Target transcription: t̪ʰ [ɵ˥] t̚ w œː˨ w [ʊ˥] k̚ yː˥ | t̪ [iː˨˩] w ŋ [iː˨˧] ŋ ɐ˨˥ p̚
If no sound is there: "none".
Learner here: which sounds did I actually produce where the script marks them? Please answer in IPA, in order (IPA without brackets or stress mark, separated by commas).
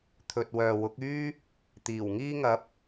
ɵ˧, ʊ˨˥, iː˨˩, iː˧